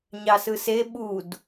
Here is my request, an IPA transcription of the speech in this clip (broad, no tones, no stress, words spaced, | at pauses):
ɲɑsɯse ɓud